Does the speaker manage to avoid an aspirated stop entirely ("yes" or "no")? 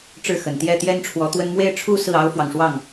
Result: no